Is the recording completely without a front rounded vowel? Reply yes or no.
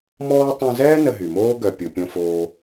no